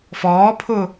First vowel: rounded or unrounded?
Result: rounded